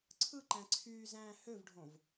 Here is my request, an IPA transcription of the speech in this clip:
ǀʰ ɯ ǃ æ̃ ǀʰ yː z æ̃ː h ø v ɖʱ õ v

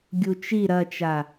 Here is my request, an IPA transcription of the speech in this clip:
ɡʲ u t͡ʃ i ɾ ɐ t͡ʃ a

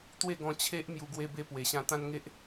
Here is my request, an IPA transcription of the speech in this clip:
t̪ w e˥˧ ɡ ɔ̃˧ t͡ɕʰ e˦ ʔ m j u˧ ɡ w e˦ b e˦ p w e˨˩ ɕ ã˦ t̪ ã˦ n ŋ e˦ ʔ

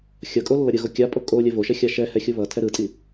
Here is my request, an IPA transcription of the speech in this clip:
xʲ ʌ kʼ o lː ʌ ɾʲ ɯ ɣ o kʲ a pʼ o kʼ o lʲ ɛ v o ʃ ɛ xʲ a ʃ ɛ h ɛ xʲ u β ʌ tʰ ɛ ɾ ɯ tʼ i

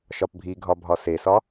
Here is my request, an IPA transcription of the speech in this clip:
ʃ ɒ p bʱ i ɡʱ ɒ bʱ ɒ s e s ɒ

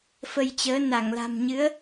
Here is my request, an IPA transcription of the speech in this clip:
f ə˧ j t͡ɕ əː˨˦ n a˧˩ ŋ l a̤˨˩ m ɲ ɨ˨˦ ə̯

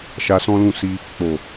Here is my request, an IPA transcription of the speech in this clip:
ʃ a˧ s ɔ̃˦ l ũ˦˨ s i˧ | k͡p o˨

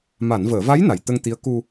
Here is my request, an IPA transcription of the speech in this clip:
m a˨˩˨ n v əː˨˩˨ v a˧˥ j n a˨˩ j t̪ ə˧ ŋ t̪ i˧˥ ə̯ k u˧

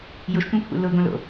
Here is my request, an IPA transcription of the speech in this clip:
j ʊ ʃ tʷ œ̃ kʷʰ ɛ̰ l ʊ ɡ õ l o̰

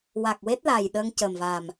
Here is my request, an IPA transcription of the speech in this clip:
w a˨˩ k̚ w e˦˥ t̚ l a˨˩ j ɗ ə˧ ŋ c ə˨˩ m v a˨˩ m

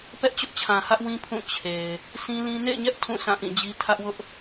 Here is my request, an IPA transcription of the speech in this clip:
p ɛ˦ ʔ t͡ɕ ʊ˦ ʔ t͡ɕʰ ã˨ h ä˦ ʔ w ĩ˦ pʰ ũ˦˨ t͡ɕʰ e˨ ɪ̯ | sʰ ĩ˦ l ĩ˦ n ḛ˦˨ ɪ̯ ɲ ɛ˦ ʔ tʰ ũ˦˨ sʰ ã˦˨ ʔ ĩ˦˨ d͡ʑ i˦ tʰ ä˦ ʔ w ʊ˦ ʔ

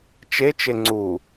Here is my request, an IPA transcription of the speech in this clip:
t͡ʃ e t͡ʃ e ŋ͡ǀ u

